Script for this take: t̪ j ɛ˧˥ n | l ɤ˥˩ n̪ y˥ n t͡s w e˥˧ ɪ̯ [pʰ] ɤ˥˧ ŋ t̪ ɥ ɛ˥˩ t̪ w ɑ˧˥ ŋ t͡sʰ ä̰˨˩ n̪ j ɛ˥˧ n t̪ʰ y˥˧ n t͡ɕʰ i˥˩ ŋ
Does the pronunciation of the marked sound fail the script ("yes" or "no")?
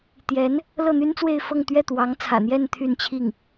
yes